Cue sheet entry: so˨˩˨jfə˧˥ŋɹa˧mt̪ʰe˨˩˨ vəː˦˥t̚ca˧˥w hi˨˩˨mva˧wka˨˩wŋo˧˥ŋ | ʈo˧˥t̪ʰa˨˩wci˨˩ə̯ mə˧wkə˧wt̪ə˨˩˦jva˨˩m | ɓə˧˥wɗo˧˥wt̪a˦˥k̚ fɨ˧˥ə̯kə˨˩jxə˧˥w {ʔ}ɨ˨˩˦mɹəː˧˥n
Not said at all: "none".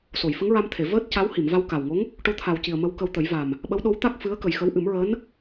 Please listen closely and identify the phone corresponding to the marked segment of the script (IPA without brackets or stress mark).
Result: ʔ